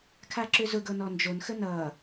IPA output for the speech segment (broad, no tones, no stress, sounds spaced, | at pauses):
kʰ a ǁ ʏ z ʊ ɡ ɤ n ɔ n d͡ʒ o n x ə n ʌ